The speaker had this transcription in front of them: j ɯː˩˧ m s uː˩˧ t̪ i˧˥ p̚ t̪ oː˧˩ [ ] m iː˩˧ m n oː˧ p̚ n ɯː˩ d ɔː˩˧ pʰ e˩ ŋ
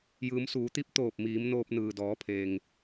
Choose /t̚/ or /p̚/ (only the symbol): p̚